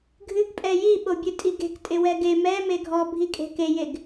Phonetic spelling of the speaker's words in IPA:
ɡʱɨɡ pʼɛji ɓobʲɨtʼiɡe̤k tʼɪwɛɡe mɛ meɡʱɔbʱikʼe̤ kejeɡ

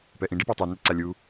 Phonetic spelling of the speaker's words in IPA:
pɛʔĩ ɖipɑtˤi nɛǀalʲu

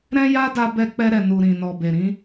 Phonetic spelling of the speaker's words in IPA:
ɾɛ̃˦ja˦da˧ bɛ˧ k͡pɛ˧ɾɛ˨nu˨ ɾĩ˨nɔ˨be˨ɾĩ˧

